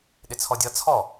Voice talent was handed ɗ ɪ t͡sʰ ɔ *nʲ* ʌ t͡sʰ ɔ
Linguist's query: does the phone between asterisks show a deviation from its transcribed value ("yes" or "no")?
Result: yes